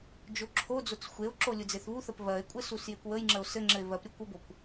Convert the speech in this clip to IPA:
d͡ʒ o ǁʰ o d͡z o t͡s xʷ e o̯ ǁ o lʲ u d͡z e θ β u θ ə p β ɜ e̯ kʷʼ ɘ s u s j e kʷ w ə j ŋ͡ǁ ə o̯ s ɘ ŋ͡ǁ ɘ e̯ β ɜ p ɾʲ o kʷ ə b o kʷ

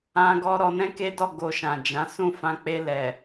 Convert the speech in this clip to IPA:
ã˦ ɡ ɔ˦ ɾ ɔ˧ n ɛ̃˦ k e˦ d ɔ˦˨ ɡ o˧ ʃ ã˨ d͡ʒ ã˨˦ s ũ˦˨ f ã˧ k͡p e˧ l ɛ˨

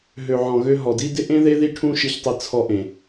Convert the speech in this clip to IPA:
ɦ ø˨ ʕ ɔ̃˨ ɣ ø˧ ɦ ɔ˨ d i˦ d ɪ˦ ʔ ẽ˦ ð e˦ ð i˦ ʈʰ ũ˧ ʃ i˧ ç tˤ ɪ˧ t͡sʰ ɔ˧ ʔ ẽ˨

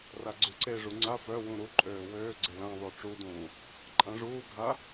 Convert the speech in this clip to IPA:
r a ɡ͡ǀ y ǀ e ʐ u ŋ͡ǀ a f œ w ũ ɾ u ǃʼ øː w øː ɡ͡ǀ e l ã ðˤ ø ʈ͡ʂ u d ũː | ǃʼ ã ʐ uː ɡʱ a

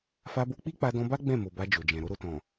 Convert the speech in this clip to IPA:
f a˧ b o˧ k͡p i˦ k͡p a˧ d ɔ̃˧ b a˦ ɡ͡b ɛ̃˦˨ m o˨ b a˧ d͡ʒ o˨ d͡ʒ ɛ̃˨ ɾ o˧ ɾ o˨ t ɔ̃˨

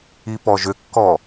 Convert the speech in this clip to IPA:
i p ɔ ʒ ʏ kː ɔ

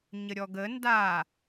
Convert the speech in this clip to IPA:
ɲ ə ɾʲ ɔ ɡ ə n d a

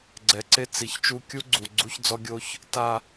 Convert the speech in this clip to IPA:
ɡ͡ǀ ɛ˨ ǀ e˦ t͡s i˨ ç t͡ʃ u˦ kʲ u˦ ɡ͡ǀ u˨ ɡ͡ǀ u˦ ç d͡z ɔ˦ ɡʲ o˦ ç | t a˨

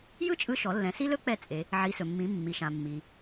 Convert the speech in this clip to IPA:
j ɯ˥ t͡ʃʼ ɯ˧ ʃ ɔ˩˧ lː ɛ̃˩˧ s i˥ l ɵ˥ k͡p ɛ˧ t͡sʼ e˩˧ | ʕ i˩˧ s ɵ˩ mː ĩ˩˧ mː i˩ ʃ ã˩ mː i˩

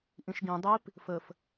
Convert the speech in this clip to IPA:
ʔ ĩ ʃ ɡ ĩ dˤ i p | f ə f

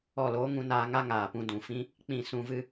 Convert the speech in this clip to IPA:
ɔ˦˨ l oː˦ ŋ ũ˧ n aː˧ ŋ a˦ ŋ aː˨ p ũ˧ d ũ˨ f ĩ˦ | k͡p ĩ˦˨ s ũ˧ v ɨ˧

